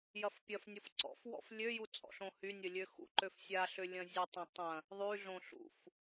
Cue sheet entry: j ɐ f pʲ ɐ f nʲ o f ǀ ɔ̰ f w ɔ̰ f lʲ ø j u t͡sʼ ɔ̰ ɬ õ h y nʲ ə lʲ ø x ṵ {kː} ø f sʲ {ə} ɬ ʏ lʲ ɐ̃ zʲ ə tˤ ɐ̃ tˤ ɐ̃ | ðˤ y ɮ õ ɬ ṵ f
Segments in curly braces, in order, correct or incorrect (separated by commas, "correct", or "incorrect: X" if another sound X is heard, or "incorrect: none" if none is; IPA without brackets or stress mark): incorrect: ǃ, incorrect: a